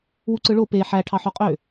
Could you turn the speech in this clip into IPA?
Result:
w u ǀ ɯ ɭ o p e ħ æ ʈʰ ɑ ħ o qʼ ø

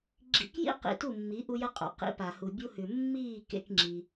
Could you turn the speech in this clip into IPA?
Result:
ɡ͡ǁ ḭ˧ k j ḭ˦ q ḭ˧ t u˦˨ mː i˨˦ ʔ u˧ j ɐ˧ qʼ o̰˨ q ḭ˨˦ p a˨ h u˨ bʲ u˧ h ʉ˨ mː iː˦˨ k ḛ˧ k ŋ͡ǁ i˧

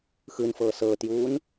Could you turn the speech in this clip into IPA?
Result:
x ɯ n f ɤː s ɤː t j uː n

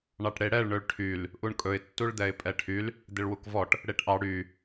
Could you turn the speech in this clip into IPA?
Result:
ɳ ɑ ʈ ɽ e ɽ ɛ ɭ ɳ ɵ ɭ ʈʰ y l | ʔ u ɳ kʼ ɵ ɪ̯ tː u ɭ d̪ ɛ ɪ̯ pʼ ɛ ʈʰ y l | d̪ ɪ ɭ w u k v ɔ ʈ | ɽ e ʈ ʔ ɑ ɽ y

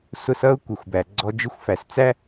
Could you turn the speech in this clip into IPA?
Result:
s ʊ˧ s ʌ˥ ʊ̯ kʷ ʌ˩ xʷ b æ˩ ɡ͡ǀ ɔ˧ d͡ʒ ɪ˥ xʷ f æ˩ s t͡s æ˥

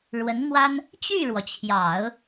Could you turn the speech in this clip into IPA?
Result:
ɻ w ə˧˥ n m w a˥ n | t͡ɕ y˥˩ ɻ w ɔ˩ t͡ɕʰ j ɑ˨˩˦ ʊ̯

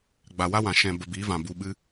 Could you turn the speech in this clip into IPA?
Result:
ɡ͡b a˨ w a˦ w ã˨ ʃ ɛ̃˨ b ə˨ b iː˨˦ v ã˨ b u˧ ɓ ɨ˦

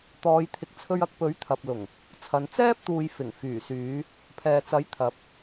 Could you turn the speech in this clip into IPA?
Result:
t̪ ɔː˨˧ j t̪ʰ ɪ˨ k̚ t͡sʰ ɵ˧ ɥ ɐ˧ k̚ p ɵ˨˥ ɥ t̪ʰ ɐ˨ p̚ l ʊ˨˩ ŋ | t͡sʰ ɐ˨˧ n t͡s ɛː˥ p̚ t̪ uː˨ j f ɪ˨˩ ŋ f yː˨˩ s yː˨˧ | pʰ ɛː˨ t͡s ɐ˨˥ j t̪ʰ ɐ˨˥ p̚

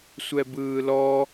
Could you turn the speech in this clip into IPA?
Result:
sʷ ɛ b ɯː l ɔ

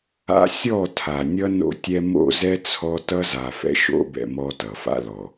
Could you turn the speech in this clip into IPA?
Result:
a̰˦ sʲ ɔ˦˨ tʰ a˨ nʲ ʌ˦ n o̰˦ tʲ ɛ˦ m o̰˦˨ z ɛ˦ t͡sʰ ɔ˦ t ʌ˦ z a˨ f ɛ̰˦ ʃ o̰˦ b ɛ̰˨ m ɔ˦ t ʌ˨ f a̰˦ l ɔ˨

